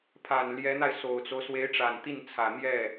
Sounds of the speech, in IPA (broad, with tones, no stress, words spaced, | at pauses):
pʰa˨˩n ljɛ˧˥n̪a˧ɪ̯ so˨˩ʊ̯t͡so˦ʊ̯ swe˧˥ɪ̯ʈ͡ʂa˨˩nt̪i˥˩nt͡sʰä˨˩ n̪jɛ˥˩